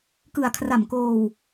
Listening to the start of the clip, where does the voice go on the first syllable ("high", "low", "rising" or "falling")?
low